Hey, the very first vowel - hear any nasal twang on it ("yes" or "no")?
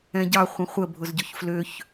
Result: yes